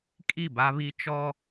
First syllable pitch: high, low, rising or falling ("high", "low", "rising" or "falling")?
falling